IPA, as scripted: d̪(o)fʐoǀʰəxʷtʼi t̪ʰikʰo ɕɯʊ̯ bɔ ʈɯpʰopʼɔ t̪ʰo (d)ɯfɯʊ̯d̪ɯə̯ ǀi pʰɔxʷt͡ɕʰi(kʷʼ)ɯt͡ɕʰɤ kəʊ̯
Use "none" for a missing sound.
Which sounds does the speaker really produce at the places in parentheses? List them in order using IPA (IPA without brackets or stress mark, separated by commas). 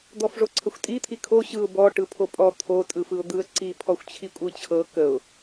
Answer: ɔ, tʼ, kʷʼ